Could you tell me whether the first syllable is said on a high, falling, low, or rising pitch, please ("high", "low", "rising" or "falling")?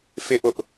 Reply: falling